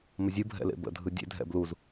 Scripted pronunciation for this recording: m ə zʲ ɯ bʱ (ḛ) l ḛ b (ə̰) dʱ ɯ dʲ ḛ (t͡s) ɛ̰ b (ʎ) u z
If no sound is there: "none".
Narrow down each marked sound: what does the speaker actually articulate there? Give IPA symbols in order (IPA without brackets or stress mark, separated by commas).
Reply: ɛ̰, ə̰, dʱ, l